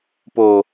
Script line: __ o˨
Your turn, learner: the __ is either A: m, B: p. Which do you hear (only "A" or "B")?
B